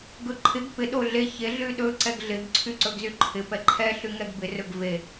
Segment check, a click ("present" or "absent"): present